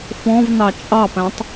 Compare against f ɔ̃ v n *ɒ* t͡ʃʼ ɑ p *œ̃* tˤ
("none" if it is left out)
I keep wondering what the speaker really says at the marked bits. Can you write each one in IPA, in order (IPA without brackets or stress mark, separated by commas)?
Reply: ɑ, æ̃